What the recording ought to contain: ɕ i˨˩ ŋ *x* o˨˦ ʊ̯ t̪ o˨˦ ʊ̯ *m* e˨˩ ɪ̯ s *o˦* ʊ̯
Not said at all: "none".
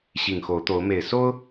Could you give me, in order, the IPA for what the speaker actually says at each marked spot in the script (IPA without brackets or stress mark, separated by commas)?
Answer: x, m, o˦